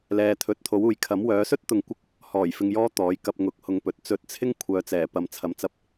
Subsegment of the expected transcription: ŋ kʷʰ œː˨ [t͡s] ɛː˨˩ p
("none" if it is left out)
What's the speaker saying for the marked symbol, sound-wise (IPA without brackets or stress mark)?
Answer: t͡s